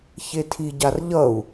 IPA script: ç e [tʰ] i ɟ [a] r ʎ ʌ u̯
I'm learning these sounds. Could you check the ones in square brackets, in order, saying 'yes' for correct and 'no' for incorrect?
yes, yes

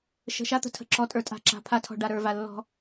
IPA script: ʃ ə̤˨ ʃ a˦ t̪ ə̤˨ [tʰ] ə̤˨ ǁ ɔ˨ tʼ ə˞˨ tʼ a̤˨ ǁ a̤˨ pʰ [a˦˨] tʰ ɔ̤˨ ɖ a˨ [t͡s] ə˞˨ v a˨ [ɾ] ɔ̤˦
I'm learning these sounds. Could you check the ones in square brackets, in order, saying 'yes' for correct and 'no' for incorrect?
yes, yes, no, no

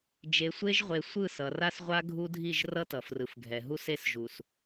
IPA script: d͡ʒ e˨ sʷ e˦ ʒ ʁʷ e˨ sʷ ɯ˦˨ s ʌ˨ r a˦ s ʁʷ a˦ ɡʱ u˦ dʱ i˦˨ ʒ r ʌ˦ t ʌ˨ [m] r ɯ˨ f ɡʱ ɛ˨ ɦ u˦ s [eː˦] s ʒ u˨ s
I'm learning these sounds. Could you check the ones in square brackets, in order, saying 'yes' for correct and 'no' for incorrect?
no, no

